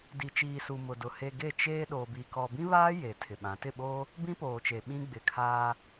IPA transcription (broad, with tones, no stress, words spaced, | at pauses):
di˨t͡ʃiː˨su˨ mʊ˨dʊ˨ he˨ ɡe˦˨t͡ʃeː˦ɗo˨bi˨ kɔ˨bĩ˦βaː˦ je˨tʰɪ˨ɓã˨˦ tɪ˦˨ɓoː˦ | bĩ˦poː˨t͡ʃe˨ ɓĩ˦ɡ͡bɪ˨kʰaː˦